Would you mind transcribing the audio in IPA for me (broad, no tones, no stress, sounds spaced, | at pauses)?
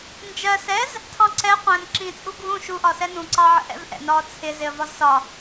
n d͡ʒ ɜ s ɛ z | tʰ ɑ̃ ǀ ɛ qʷ æ̃ n ǁ ĩ t͡sʼ u ɡʱ ũ ʃ u ʔ ɒ s ɛ n ũ ǀ ɑ ʕ ə̰ ʔ ɛ̰ v ʔ ɛ̰ n ɒː t͡sʰ ɪ z ɪ ə̯ v ɒ z s ɒ